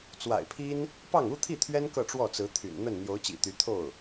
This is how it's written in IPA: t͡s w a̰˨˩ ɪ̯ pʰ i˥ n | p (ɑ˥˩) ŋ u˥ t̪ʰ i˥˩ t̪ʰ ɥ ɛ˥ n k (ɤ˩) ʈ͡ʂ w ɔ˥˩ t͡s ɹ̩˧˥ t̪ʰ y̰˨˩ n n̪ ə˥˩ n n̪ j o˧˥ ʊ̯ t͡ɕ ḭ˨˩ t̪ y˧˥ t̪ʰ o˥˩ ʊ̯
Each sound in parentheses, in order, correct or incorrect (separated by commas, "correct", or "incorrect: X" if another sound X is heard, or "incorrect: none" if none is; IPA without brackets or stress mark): correct, incorrect: ɤ˥˧